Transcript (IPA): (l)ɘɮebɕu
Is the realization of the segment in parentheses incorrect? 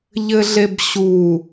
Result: yes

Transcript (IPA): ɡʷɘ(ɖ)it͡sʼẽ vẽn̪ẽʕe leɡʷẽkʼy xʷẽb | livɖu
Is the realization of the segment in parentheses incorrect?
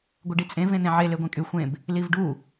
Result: no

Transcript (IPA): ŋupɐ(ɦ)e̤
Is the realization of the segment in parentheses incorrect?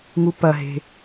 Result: no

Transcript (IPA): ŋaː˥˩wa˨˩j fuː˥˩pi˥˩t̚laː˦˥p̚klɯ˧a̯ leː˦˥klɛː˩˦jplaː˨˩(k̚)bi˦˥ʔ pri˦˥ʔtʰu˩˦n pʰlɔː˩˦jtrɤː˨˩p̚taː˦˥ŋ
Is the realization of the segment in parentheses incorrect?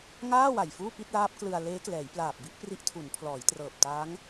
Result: yes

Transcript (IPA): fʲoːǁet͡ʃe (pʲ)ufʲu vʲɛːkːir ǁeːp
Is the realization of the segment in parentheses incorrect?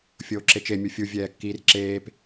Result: yes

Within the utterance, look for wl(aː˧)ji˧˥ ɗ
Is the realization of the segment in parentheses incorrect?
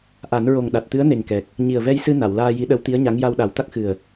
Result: no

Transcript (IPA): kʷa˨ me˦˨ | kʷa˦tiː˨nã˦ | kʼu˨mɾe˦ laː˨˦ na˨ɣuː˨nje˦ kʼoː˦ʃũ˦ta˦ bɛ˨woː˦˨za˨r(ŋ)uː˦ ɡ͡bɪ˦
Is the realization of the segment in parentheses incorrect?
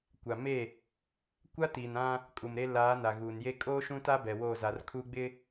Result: yes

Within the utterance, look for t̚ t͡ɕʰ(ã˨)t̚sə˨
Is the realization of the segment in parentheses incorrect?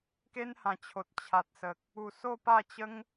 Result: yes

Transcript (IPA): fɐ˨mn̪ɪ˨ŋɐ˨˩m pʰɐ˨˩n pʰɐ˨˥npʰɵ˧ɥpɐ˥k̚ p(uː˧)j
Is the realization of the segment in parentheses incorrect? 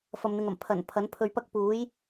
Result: yes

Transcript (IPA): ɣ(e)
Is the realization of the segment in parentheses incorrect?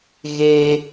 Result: no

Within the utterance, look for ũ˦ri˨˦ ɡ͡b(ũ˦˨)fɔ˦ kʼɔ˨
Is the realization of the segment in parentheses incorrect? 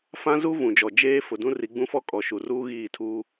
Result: yes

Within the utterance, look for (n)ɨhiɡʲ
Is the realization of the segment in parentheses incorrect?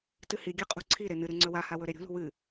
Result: yes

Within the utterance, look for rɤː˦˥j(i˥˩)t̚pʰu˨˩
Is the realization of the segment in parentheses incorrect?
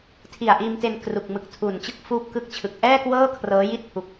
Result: no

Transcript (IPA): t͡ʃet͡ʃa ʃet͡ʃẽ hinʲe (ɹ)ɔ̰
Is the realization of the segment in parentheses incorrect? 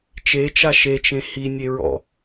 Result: no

